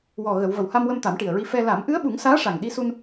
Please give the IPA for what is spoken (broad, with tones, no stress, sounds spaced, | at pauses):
w ɔ˨˩ ɣ ə˨˩˨ w v ə˨˩ w h a˧ m w ə˧ m t̪ a˨˩˦ m ʈ i˨˩ ə̯ ɹ i˧ f ɛ˧ l a˨˩˦ m ʔ ɨ˧˥ ə̯ ɓ u˨˩˦ ŋ s aː˧˥ ʂ a˨˩ ŋ ɗ i˧ s u˧ n